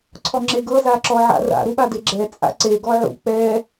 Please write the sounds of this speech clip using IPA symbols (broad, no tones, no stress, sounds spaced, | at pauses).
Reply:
ǀʰ ɔ ŋ͡ǁ e ɡ ɤ z a ǁ ɔ ʕ a̰ r a̰ ɾ u ɓ a d e ɡ͡ǁ ɛ t͡sʼ a̰ ǀ e ɡ ɔ ʕ ṵ k͡p ɛ